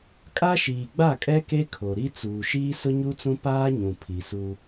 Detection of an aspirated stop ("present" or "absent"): present